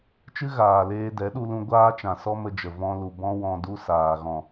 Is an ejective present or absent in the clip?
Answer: absent